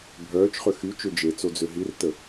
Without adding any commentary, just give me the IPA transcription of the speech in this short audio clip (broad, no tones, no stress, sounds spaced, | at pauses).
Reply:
bʱ œː t͡ʃ χ ø x y t͡ʃ ø d͡ʒ e t͡s o d͡z ø ɦ i r t ə